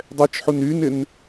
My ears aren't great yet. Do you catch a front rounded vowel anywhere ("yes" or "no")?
yes